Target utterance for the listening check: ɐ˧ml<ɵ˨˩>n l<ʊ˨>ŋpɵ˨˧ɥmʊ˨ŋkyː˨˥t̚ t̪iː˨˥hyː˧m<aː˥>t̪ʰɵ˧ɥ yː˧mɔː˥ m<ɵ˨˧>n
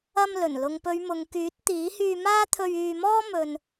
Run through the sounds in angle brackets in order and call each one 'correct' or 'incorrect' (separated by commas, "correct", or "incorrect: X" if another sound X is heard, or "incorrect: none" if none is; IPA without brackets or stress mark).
correct, correct, correct, incorrect: ɵ˧